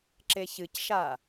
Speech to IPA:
ǁeçɨcʃa

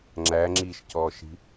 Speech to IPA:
ŋ͡ǁæŋ͡ǁiːʃcɔːʃi̤

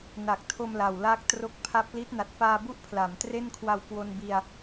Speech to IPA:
na˨˩k̚tʰo˧mla˨˩wla˦˥k̚ tro˦˥k̚pʰa˦˥p̚ li˦˥t̚na˨˩t̚faː˧bu˥˩ʔ pʰla˩˦mtre˥˩nkʰwa˧wkwo˧n bi˧a̯

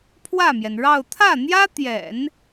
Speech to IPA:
pʰwä˥˩mjɛ˩nɻɑ˥˧ʊ̯ t̪ʰä˥˩n̪jä˥t̪jɛ̰˨˩˦n

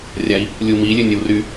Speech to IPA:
rʲai̯ | lʲumi lʲønʲəwry

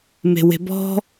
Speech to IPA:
me̤we̤bɔ̤

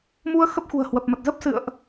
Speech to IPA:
mu˧ə̯ xə˦˥p̚xṳ˨˩ə̯hwə˨˩p̚mə˨˩t̚ zə˦˥p̚sɨ̰˧˨ə̯ʔ

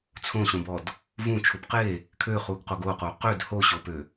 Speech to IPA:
t͡sʰõɕõbɔd | vũt͡ʃʰub qe | kʰøχuɡqoɡ oqo qød hoɕopø

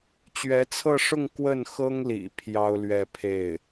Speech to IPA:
t͡ɕɥɛ˧˥t͡sʰɤ˥˧ʂʊ˥˧ŋ kwə˥˩nxɤ˥ŋlḭ˨˩ pʰjɑ˥ʊ̯lɥɛ˥˧ pʰe˥˩ɪ̯

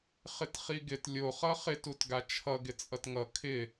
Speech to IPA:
χɪtχiɡɪt lʲo χʌχɪt utɡat͡ʃʰʌ ɡɪt͡sʼʌtŋʌ kʰɪ

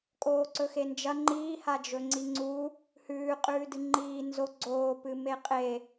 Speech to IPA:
kʼoːǀɵxend͡ʒɐ ŋ͡ǃiːha d͡ʒɵŋ͡ǀiŋ͡ǀu | hʉːqʼʉːdɨ ŋ͡ǃiː nzo ɡ͡ǀoːpɨme qʼe

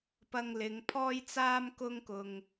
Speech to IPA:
pɐ˧ŋlɪ˨˧ŋ pʰɔː˧jt͡saː˧m kʊ˧ŋkʊ˨ŋ

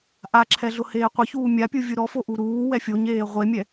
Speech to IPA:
ʔaǁʰɛɮʊ heːqʷɪçuː mʲapʲu vʲuɾɔfo ʔuɾuː wɛfʲoɲeː ʁʷemʲɛ

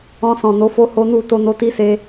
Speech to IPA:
ɔ̃˧sɔ̃˨no˨˦fo˦ ho˦nu˦˨ to˧no˧ti˦se˧

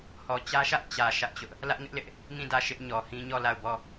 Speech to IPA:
hɔ˨ t͡ɕä˦ʃä˦ʔ t͡ɕä˨ ʃä˦ʔt͡ɕʊ˦ʔ | lä˦ʔŋɪ˦ʔlɪ˦ʔ | ŋĩ˦˨ dä˦˨ʃɪ˦ʔ ɲɔ˨hĩ˦ɲɔ˦˨la˦˨ʊ̯ bɔ˦˨

